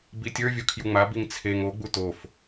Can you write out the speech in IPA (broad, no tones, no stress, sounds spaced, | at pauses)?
b i tʲ ə˞ vʲ o kʰ j u ŋ͡m a b i ŋ t͡sʰ e ŋ o ɡ͡b u t o f